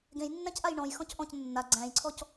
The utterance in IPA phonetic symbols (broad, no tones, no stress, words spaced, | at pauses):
ɡẽjnːæ̃cʔaj ɳɔ̃jxɔ̃c ʔɔ̃c nːa ɡ͡ǀæ̃jǀʰɔc